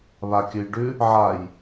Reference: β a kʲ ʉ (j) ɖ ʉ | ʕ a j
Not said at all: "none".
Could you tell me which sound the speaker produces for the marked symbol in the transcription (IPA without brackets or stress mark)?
j